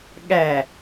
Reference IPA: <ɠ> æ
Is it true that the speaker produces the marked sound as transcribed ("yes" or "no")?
yes